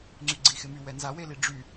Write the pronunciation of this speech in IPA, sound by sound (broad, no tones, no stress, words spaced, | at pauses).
ŋ͡ǀyɡ͡ǀixɪmy wɛnzawe liɖ͡ʐy